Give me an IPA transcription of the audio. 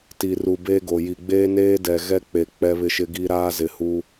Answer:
t i˨ r u˨ b e˦ ɡ o˨ j i˨ ɡ͡b eː˦ n eː˦ d ɛ˨ ɣ ɛ˦ k͡p e˨ k͡p ɛ˦ β ɪ˦ ʃ ɪ˦ ɡ i˦ ɾ aː˦ z ɪ˨ h u˦

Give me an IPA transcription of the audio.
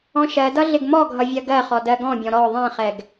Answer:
ɔ̃ ʃ ɜ d ʌ ɮ ɪ ɡ m ɔ ɡʱ ʌ vʲ ɜ ɡ ɜ χ ɔ d ɜ ɡ ɔ̃ bʲ ɔ̃ ɾ ɔ ðˤ ɛ̃ χ ɛ ɡ

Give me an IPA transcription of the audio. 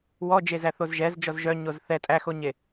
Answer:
w ɔ d͡ʒ e z æ θ o z ʒ ɛ z d͡ʒ ɔ z ʒ œ ɲ o z θ ɛ tʼ æ x o ɲ e

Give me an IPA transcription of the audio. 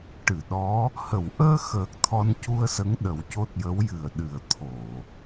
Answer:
ʈ ɨ˨˩˨ ɗ ɔ˧˥ | h ə˨˩˨ w ʔ əː˧ x əː˨˩ k̚ t̪ʰ ɔ˧ n c u˧ ə̯ s ə˧˥ ŋ ɗ ə˨˩˦ w c o˦˥ t̚ j ə˧˥ w j ɨ˨˩ ə̯ ɗ ɨ˨˩ ə̯ t̪ʰ o˨˩˨

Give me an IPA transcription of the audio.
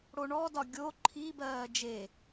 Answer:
ɽ o ɳ ɔ d ɒ ɡʲ o ǃʰ i b ɜː d͡ʒ e

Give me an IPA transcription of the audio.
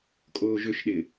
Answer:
kʼ oː ʒ ø ʃ ɗ ɪ

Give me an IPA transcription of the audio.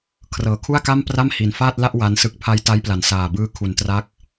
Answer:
kʰ r ɤː˩˦ kʰ u˥˩ a̯ k a˥˩ m p r a˥˩ m h i˨˩ n f aː˥˩ t̚ l a˥˩ ʔ w a˦˥ n s ɯ˦˥ k̚ pʰ a˦˥ j t a˦˥ j p l a˨˩ n s aː˨˩ b ɯː˦˥ kʰ u˨˩ n t r a˦˥ k̚

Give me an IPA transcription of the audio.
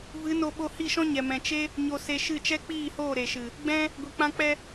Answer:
v ɨ˨˦ n o˧ ɓ o˧ h i˦˨ ʃ ɔ̃˦ ɲ ɛ˨ m ɛ̃˨ t͡ʃ e˦ | ɲ o˧ s e˧ ʃ ɨ˦˨ t͡ʃ ɛ˦ k͡p iː˦˨ h oː˦˨ ɾ e˨ ʃ ɨ˨ | ɡ͡b ɛ̃˦ | ɡʷ i˨ k͡p ã˧ k͡p ɛ˧

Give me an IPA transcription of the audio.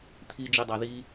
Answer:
t̪ʰ i d͡ʒ i dˤ ɑ ð i

